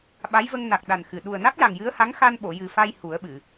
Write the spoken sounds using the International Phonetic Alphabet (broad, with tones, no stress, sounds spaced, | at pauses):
ɓ a˧˥ j v ə˧ ŋ n a˨˩ k̚ ɗ a˨˩ n x ɨ˨˩ ɗ u˨˩ ə̯ n a˦˥ k̚ j a˨˩ ŋ j ɨ˧˥ ə̯ h a˧˥ ŋ x a˧ n ɓ o˨˩˨ j ɨ˨˩ f a˧ j h u˨˩˦ ə̯ ɓ ɨ˨˩˨